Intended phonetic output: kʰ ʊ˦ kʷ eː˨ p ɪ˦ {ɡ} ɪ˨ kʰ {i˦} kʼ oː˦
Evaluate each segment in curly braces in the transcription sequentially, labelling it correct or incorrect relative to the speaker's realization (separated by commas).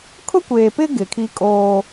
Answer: correct, correct